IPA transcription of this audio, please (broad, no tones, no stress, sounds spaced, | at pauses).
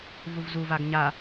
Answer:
v u v z u v a ɡ ɲ a